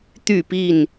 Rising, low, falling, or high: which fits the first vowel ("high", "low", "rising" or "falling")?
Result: falling